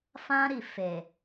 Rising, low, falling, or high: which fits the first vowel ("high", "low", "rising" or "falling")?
high